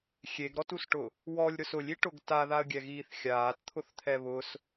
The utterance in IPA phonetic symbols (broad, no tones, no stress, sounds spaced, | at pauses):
xʲ e ɡ ɾ ɔ t u s ʈ ʊ | w ɔ lʲ ɾ ʊ s ʊ lʲ i ʈ ʊ ɡ t a ð a ə̯ ɡʲ ɛ ɣ iː θ xʲ aː t t̪ʰ ʊ θ t̪ʰ ɛ β ʊ s